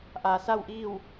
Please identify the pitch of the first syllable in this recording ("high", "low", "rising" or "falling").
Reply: low